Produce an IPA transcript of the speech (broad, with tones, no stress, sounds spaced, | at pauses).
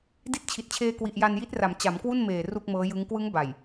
d i˦˥ t̚ t͡ɕʰ i˨˩ t̚ t͡ɕʰ eː˧ k w i˨˩ ʔ j a˧ n j i˦˥ t̚ r a˩˦ m t͡ɕ a˩˦ m k w u˥˩ n m eː˨˩ r u˥˩ k̚ m ɤː˦˥ j ɯ˦˥ ŋ k w ɯ˦˥ ŋ b a˨˩ j